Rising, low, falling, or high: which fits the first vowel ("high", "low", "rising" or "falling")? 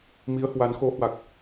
rising